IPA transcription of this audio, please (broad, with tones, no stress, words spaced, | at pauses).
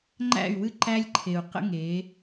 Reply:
ŋ͡ǃæ̰˦˨y̯wɨ˦ ǃæ˦lʲǃʰe˨u̯qə̰˦ ŋe˨˦